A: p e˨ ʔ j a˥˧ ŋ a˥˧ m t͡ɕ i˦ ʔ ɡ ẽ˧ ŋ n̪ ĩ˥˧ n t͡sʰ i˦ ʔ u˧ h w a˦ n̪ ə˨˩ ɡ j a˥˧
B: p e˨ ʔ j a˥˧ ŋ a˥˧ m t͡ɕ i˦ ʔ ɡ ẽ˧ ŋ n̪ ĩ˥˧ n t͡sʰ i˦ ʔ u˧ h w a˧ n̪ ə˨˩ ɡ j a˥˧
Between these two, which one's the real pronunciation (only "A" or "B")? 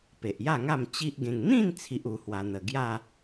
B